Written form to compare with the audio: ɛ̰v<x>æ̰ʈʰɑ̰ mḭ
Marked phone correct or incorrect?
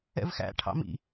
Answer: correct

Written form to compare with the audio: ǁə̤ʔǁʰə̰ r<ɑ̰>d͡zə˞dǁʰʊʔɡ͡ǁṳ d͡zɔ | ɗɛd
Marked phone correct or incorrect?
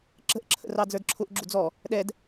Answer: incorrect: ɑ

